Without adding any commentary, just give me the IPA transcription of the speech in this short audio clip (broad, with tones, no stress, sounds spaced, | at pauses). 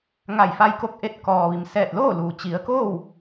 ŋ a˧˩ j f a˧ j k o˧ k̚ ʔ e˧ t̚ k ɔː˩ ʋ i˩ m s ɛː˧˩ t̚ l oː˥˨ l uː˩ t͡ɕ i˩˧ ə̯ k oː˥˨ w